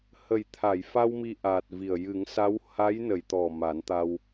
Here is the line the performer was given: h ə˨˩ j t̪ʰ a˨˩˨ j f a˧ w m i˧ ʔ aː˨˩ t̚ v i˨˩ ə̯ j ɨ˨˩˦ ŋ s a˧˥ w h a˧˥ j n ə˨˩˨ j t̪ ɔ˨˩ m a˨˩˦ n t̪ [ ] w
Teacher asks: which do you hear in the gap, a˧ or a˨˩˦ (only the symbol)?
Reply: a˧